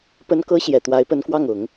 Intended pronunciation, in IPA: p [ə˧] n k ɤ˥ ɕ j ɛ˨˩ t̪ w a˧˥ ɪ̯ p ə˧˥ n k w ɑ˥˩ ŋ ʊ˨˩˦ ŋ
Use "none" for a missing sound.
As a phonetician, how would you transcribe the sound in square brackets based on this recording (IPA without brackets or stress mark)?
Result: ə˥